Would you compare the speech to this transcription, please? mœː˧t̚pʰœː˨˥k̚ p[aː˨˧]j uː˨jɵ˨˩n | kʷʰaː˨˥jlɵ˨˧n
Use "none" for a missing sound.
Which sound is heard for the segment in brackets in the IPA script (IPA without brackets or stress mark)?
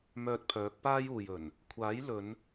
aː˥